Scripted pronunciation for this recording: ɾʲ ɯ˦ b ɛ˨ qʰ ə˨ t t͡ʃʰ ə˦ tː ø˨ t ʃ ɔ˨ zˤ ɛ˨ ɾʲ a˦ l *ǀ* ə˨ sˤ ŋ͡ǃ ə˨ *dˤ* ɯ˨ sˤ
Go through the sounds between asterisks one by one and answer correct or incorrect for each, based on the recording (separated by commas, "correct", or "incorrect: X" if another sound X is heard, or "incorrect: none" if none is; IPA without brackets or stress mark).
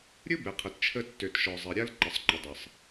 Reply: incorrect: ǃ, correct